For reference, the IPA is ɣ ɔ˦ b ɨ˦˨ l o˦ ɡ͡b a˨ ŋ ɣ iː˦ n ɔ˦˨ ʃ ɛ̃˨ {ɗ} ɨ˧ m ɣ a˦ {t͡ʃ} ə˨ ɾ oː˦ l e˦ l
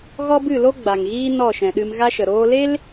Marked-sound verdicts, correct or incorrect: correct, incorrect

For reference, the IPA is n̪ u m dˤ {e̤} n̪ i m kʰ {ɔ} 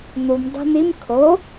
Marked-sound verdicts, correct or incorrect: correct, incorrect

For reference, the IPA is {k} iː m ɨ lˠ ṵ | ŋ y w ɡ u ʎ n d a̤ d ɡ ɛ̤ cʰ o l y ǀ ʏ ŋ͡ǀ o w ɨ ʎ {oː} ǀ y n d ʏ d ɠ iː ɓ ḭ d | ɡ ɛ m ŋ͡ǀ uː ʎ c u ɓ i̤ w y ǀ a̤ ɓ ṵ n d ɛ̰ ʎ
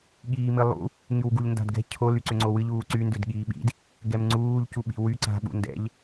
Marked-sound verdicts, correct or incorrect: incorrect, incorrect

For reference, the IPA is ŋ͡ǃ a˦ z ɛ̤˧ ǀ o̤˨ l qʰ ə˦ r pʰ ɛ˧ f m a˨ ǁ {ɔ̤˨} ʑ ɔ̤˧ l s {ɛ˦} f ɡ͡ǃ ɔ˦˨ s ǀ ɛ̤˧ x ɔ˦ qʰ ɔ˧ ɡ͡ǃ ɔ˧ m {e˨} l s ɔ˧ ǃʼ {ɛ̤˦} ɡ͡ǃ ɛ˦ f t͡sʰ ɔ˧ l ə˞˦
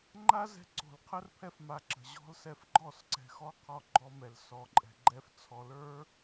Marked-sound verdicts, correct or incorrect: incorrect, incorrect, incorrect, incorrect

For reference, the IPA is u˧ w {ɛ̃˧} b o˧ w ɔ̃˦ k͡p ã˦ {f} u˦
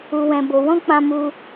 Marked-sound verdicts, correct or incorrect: correct, incorrect

